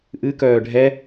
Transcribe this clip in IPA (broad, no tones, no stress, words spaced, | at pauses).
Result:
ʔɨkœː ɖʱɛ